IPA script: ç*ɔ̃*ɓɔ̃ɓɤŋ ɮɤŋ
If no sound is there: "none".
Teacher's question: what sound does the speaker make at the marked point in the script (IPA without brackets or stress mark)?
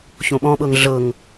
õ